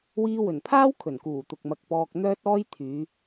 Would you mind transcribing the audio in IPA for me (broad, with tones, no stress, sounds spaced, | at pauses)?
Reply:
w iː˧ w ɵ˨˩ n pʰ aː˥ w kʰ ɵ˨˩ n k uː˨˩ t̪ ʊ˨ k̚ m ɐ˨ k̚ p ɔː˧ k̚ n̪ œː˥ t̚ ɔː˥ j t̪ʰ yː˨˧